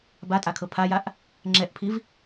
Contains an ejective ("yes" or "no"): yes